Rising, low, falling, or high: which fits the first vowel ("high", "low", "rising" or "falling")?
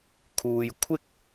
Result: low